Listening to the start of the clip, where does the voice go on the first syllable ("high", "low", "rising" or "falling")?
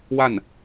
falling